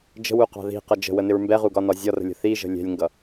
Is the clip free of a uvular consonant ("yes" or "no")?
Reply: no